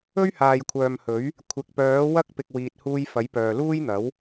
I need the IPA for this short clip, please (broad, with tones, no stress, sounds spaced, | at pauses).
ɵ˥ ɥ h aː˨ j kʷʰ œː˨ m h ɵ˨˥ ɥ | kʷʰ ɪ˨ k̚ p œː˨˥ w ɐ˥ k̚ p ɪ˨ k̚ w iː˨ t̚ h uː˧ j f ɐ˨˥ j p œː˨ l uː˥ j n̪ ɐ˨˥ w